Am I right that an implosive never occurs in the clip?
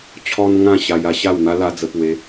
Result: yes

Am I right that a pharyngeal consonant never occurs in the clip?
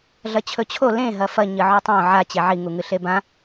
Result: no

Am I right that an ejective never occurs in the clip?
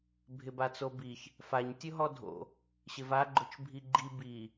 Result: yes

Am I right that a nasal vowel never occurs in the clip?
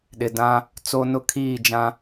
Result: no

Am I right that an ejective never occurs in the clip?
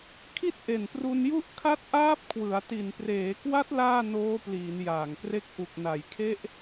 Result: yes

